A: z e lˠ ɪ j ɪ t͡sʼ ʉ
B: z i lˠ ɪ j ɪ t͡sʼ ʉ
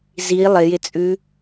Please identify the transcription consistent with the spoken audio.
B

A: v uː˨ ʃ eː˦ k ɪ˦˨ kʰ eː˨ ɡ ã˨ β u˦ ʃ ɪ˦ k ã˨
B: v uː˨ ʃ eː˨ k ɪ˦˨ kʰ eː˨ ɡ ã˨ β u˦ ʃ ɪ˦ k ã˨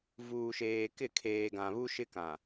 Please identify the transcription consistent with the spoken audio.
B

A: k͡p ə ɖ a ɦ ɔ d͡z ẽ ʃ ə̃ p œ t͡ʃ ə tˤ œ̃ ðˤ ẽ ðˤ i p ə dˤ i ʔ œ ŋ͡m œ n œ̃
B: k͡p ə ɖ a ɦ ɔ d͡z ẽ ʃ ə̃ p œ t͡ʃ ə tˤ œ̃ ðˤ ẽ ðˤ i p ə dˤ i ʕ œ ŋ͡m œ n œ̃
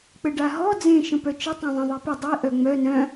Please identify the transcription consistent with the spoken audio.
A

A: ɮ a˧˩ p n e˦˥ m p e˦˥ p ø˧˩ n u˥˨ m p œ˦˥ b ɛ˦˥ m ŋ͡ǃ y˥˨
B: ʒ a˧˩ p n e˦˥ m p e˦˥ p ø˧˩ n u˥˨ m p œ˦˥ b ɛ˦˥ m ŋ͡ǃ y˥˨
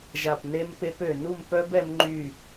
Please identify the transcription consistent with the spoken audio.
B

